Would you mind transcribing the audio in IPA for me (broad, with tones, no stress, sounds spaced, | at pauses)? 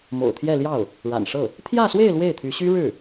m o̰˨˩ ʊ̯ t̪ʰ j ɛ˥˧ l j ɑ˥˩ ʊ̯ | ɻ a̰˨˩ n ʂ ɤ˥˩ | t̪ʰ j ä˥˧ s w e˥˧ ɪ̯ l w e˥˩ ɪ̯ t̪ʰ y˧˥ ɕ y˥ ɻ ɻ̩˥˩